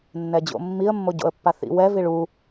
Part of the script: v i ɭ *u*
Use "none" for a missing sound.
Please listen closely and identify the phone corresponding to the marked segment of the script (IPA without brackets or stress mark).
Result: u